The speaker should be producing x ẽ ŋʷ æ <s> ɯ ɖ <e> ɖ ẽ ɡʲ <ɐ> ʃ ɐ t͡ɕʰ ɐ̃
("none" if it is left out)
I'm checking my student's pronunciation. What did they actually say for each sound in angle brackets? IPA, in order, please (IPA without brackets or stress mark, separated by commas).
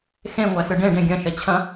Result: s, ẽ, ɐ̃